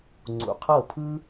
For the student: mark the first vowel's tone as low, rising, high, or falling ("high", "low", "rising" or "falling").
low